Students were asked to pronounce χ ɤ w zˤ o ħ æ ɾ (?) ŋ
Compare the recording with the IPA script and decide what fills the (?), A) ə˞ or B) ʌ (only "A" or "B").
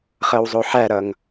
B